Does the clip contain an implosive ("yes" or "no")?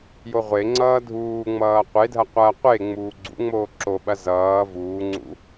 yes